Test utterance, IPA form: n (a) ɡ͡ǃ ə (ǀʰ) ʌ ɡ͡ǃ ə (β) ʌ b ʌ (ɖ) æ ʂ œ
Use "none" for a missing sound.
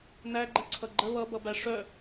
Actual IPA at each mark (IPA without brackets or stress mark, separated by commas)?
æ, ǀʰ, β, b